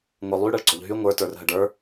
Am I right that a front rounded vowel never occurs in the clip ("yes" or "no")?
no